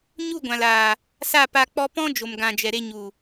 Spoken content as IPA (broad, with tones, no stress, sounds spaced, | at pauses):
ɲ u˦˨ ɡʷ ã˨ l aː˨ | s a˦˨ p a˧ k͡p ɔ˦ p ɔ̃˦ d͡ʒ o˨ m ɡ ã˨ d͡ʒ ɛ˨ ɾ e˧ ɲ u˨